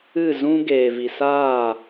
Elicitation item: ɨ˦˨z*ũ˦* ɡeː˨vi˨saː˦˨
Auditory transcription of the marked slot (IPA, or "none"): ũ˦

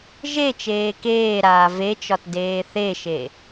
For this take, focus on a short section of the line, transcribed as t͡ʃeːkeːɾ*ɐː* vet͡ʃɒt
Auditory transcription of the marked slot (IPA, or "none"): aː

